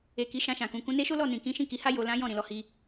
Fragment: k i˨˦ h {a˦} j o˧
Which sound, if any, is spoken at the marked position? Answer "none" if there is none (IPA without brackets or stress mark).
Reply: a˦